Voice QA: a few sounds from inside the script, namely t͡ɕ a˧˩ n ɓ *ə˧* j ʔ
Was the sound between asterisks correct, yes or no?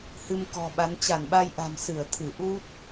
no